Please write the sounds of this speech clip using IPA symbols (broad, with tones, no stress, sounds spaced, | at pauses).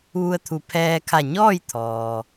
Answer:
ʋ u˧ ə̯ t̪ʰ u˩˧ pʰ ɛː˧ kʰ a˧˩ ɲ ɔː˥˨ j t̪ʰ ɔː˩